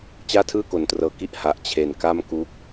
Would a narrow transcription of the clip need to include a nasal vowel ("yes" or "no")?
no